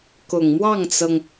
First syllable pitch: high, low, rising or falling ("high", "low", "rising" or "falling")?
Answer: low